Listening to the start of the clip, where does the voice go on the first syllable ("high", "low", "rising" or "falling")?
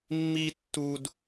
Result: high